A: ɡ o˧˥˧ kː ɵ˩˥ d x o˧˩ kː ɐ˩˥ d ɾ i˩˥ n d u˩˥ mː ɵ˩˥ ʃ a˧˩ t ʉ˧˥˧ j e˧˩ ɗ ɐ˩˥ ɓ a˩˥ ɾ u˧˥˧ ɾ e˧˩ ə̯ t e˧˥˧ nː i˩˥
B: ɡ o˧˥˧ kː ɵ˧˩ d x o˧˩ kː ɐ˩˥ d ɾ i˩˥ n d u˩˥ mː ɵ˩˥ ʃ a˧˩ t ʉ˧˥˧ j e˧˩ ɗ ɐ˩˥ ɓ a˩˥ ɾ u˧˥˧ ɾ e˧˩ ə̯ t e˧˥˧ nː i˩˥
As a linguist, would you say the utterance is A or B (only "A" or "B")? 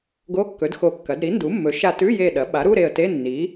A